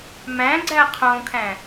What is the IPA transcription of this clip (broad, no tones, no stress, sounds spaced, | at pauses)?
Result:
m æ̃ ɡ͡ǀ æ qʰ õ kʰ æ̃